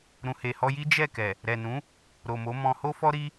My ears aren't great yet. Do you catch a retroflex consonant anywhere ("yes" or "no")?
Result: no